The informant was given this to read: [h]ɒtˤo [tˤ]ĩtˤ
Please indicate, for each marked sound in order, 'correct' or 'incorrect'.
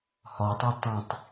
correct, correct

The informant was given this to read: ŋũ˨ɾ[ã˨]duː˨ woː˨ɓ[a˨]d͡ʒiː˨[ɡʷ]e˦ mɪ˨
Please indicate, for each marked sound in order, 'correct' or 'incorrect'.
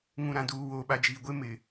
correct, correct, correct

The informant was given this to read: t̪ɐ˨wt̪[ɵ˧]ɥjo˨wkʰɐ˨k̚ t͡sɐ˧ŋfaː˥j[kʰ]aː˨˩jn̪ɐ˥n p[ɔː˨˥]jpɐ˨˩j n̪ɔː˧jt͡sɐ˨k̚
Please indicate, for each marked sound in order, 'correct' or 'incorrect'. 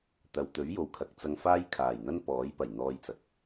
incorrect: ɵ˨˥, correct, correct

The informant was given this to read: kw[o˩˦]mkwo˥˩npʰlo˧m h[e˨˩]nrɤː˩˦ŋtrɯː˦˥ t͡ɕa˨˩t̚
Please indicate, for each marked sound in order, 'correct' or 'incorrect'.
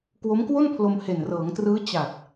incorrect: o˦˥, correct

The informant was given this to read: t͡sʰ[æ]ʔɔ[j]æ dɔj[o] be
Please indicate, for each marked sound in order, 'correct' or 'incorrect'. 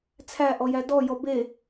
correct, correct, incorrect: ɔ

